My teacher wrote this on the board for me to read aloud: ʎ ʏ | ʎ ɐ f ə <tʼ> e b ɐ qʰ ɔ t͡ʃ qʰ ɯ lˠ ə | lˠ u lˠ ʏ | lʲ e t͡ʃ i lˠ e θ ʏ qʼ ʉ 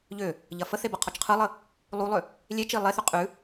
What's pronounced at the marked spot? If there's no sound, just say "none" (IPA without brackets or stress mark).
θ